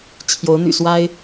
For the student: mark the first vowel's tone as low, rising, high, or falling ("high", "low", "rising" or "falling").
rising